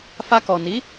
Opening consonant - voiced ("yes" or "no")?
no